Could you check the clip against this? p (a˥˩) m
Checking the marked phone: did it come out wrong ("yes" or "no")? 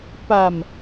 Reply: yes